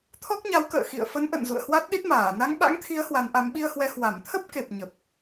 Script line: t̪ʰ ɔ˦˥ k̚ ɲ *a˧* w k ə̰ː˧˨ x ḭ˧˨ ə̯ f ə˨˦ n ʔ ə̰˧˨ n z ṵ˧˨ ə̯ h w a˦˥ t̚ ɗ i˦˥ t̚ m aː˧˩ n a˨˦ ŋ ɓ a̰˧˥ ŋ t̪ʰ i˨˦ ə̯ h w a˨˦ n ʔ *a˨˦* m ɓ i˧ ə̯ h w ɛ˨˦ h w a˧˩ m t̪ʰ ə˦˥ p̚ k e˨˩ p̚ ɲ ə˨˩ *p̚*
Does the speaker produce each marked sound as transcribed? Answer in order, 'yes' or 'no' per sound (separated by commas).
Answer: no, yes, yes